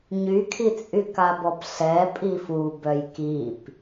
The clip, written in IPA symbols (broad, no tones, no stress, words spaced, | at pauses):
ɲykʰit͡sʼyka bɔpɬɛpʼi fu bœjkip